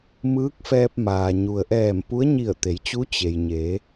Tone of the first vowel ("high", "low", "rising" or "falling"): rising